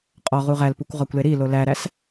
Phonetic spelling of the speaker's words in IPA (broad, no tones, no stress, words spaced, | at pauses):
qʼɒ ʁuʁælpukʷ ʁɒkʷleɾilo læɾæs